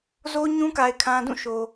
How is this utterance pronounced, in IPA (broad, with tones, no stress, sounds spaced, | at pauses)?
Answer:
z o˦ ɲ ũ˦ k a˨ ɪ̯ kʰ ã˨ d ũ˦˨ ʃ o˨